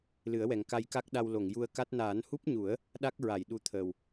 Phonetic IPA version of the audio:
l ɨ˨˩˦ ə̯ w ɛ˨˩ ŋ k a˧ j k a˦˥ k̚ ɗ a˧ w l o˨˩˨ ŋ j u˧ ə̯ k a˦˥ t̚ n aː˨˩˦ n h u˦˥ p̚ ɲ u˨˩˦ ə̯ | ɗ a˦˥ k̚ ɹ a˨˩˨ j ɗ u˧˥ t̪ʰ əː˨˩ w

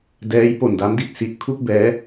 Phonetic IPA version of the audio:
d ɛː˦˥ j p o˨˩ n d a˦˥ m d i˨˩ t̚ s i˨˩ ʔ kʰ u˥˩ k̚ b ɛː˦˥

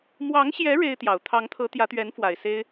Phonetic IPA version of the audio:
m w ɑ˧˥ ŋ ɕ j ɛ˧˥ ɻ e˥ ɪ̯ t̪ j ɑ˨˩ ʊ̯ t̪ʰ ɑ˧˥ ŋ t̪ʰ ɤ˧˥ t̪ j ä˧˥ t̪ ɥ ɛ˧˥ n f w a˨˩ ɪ̯ s e˥ ɪ̯

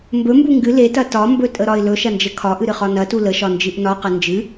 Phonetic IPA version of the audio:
m b ɵ m b u ŋ ɡ ɨ l e t ɐ t ɒ m b ɵ tʼ ə ɾ ɒ ɪ̯ l ɵ ʃ ɐ n d͡ʒ ə kʰ ɒ ʔ ɨ ɾ ɨ χ ɒ n ɐ t u l ə ʃ ɒ n d͡ʒ ɨ ʔ n ɒ q ə n d͡ʒ ɨ

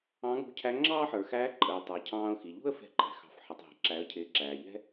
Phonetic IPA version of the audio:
ɑ̃˧˥ ŋ ṳ˧˥ cʰ æ˧˥ ŋ͡ǁ ɑː˥ ħ ə˞˩ x æː˧˥ ǃʼ ə˩ ɪ̯ tˤ ə˞˩ cʰ ɑ̃ː˧ ʊ̯ x i˩ ʎ ṳ˥ ə̯ f ɛ̤˧ ǃʼ ɛ̤˩ x ɑ̤˩˧ f ħ ɪ˩ tˤ ɦ ɛ̤˩ ǁ æ˩˧ ə̯ cʰ ɪː˩˧ ǁ æː˩ ʎ ɛ̤˥

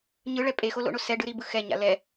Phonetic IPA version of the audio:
ɲ ɯ ɭ ɛ pʼ e x o l o̰ ɳ o s ɛ ɖ ɯ ɾ i b ɯ x ɛ ɲ a̰ l ɛ

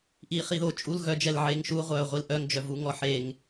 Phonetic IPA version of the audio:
ʔ iː χ i ð o t͡ʃʼ u l ɣ œ d͡ʒ ɛ l ʕ eː ŋ ʃ u ʁʷ œː ʁʷ i l ʔ œ ŋ d͡ʒ œ v u ŋ ɔ ħ e ŋ

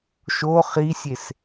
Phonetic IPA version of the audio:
ʃ o χ i sʲ e s

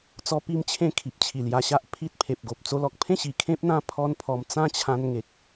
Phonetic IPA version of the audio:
t͡s ɔ˦ p i˥˧ m t͡ɕʰ ẽ˥˧ kʰ i˨ p̚ t͡ɕʰ i˨˩ l j a˧ ɕ a˦ ʔ pʰ i˦ t̚ pʰ e˨ p̚ ɡ o˨ p̚ t͡s o˧ l ɔ˨ k̚ pʰ ẽ˥˧ ɕ i˨˩ kʰ ẽ˦ p̚ n̪ ã˦ pʰ ɔ˦ n pʰ ɔ˧ m t͡s ã˥˧ t͡ɕʰ ã˧ n ŋ e˨ k̚

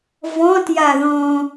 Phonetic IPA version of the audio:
v ɔ̃ t j a ð ɔ̃

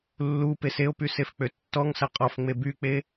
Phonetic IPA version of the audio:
lː u p e s e o̯ p y s e f k͡p ø tː ɔ ŋ s ɐ qʼ ɔ f ŋ͡m e b y k͡p e

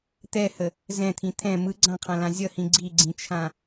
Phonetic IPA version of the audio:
t̪ ɛ h ə | z ɛ̃ t̪ʰ ĩ t̪ʰ ɛ̃ m ɯ ɡ͡ǀ ã qʰ ã l ã zʲ ʌ h ĩ ɡ͡ǀ i ɡ͡ǀ ĩ t͡ʃʰ ã

